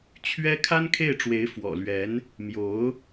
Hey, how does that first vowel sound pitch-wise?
high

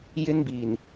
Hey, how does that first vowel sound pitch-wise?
high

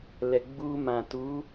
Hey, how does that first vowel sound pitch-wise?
low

